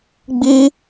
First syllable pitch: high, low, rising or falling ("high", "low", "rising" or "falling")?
high